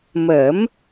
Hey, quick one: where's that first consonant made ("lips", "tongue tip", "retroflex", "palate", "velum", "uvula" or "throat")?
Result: lips